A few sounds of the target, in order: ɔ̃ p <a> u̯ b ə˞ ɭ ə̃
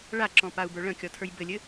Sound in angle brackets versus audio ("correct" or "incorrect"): correct